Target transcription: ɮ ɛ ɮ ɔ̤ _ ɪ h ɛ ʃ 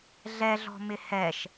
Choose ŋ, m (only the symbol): m